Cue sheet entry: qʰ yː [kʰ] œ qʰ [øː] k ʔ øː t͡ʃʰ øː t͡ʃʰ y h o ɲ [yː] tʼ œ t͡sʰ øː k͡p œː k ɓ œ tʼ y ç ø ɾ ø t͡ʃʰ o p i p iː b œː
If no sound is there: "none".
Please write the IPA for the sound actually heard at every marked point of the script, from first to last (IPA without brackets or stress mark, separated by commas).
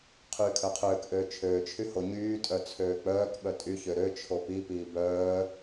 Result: kʰ, øː, yː